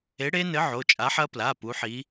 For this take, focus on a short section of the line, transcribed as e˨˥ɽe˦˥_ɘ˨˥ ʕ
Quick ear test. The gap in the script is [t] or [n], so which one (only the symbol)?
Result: n